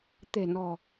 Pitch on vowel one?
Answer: low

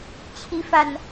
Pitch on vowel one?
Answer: rising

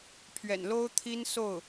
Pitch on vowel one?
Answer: low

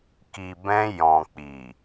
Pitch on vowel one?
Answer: low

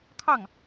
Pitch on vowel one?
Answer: falling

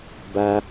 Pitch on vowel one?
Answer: high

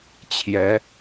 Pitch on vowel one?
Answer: rising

